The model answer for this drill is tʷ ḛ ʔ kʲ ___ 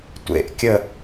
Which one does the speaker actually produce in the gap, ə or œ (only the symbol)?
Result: ə